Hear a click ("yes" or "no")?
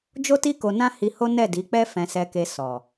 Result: no